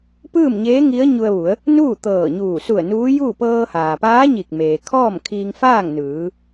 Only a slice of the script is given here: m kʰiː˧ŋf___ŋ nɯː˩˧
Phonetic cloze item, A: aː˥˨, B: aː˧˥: A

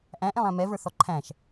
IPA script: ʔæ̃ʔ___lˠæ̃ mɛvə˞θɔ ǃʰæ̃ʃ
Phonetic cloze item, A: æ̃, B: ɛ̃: B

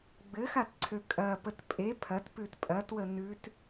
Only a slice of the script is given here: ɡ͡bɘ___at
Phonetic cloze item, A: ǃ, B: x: B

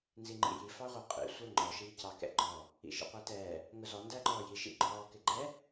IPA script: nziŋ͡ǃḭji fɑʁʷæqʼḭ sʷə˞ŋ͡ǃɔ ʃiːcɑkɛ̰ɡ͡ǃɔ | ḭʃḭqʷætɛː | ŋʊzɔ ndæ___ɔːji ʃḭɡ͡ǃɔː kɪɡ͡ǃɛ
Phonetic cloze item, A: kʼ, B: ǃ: B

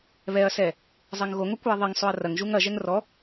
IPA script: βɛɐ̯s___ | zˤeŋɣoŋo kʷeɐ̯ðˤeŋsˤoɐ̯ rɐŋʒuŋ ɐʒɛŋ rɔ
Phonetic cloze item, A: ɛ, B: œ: A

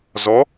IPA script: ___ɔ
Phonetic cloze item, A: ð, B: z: B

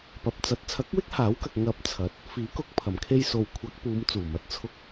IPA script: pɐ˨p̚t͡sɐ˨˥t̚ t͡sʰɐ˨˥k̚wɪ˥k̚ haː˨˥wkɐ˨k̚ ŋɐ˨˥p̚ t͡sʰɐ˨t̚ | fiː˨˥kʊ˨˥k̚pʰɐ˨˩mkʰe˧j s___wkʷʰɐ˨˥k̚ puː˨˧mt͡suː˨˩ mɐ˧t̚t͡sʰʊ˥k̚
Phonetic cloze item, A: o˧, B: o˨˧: B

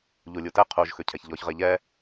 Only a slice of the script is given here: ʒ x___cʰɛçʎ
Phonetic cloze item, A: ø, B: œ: A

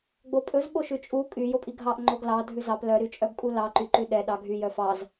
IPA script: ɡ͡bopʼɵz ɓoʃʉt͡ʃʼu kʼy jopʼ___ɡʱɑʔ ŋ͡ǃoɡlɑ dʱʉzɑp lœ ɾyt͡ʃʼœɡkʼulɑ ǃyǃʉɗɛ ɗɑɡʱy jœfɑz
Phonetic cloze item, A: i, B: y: A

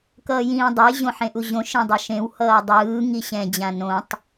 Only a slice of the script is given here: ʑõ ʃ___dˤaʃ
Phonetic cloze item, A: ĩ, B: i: A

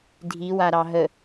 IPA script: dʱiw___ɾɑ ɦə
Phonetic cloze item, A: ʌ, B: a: B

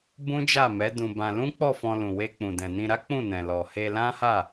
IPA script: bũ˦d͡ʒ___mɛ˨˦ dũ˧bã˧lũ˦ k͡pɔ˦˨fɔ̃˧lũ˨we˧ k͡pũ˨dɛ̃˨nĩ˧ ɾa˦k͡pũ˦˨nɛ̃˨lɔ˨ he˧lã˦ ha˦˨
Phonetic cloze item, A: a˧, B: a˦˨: B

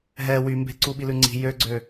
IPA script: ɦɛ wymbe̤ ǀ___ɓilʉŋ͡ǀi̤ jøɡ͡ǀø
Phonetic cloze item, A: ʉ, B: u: B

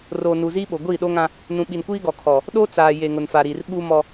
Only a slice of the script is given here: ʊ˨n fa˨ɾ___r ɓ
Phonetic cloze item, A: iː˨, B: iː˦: A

